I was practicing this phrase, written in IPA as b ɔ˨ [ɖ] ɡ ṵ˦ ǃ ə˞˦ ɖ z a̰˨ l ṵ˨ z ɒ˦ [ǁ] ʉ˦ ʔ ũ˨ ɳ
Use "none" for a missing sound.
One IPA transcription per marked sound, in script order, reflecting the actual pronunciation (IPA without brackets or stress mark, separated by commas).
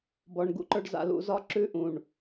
ɳ, ǁ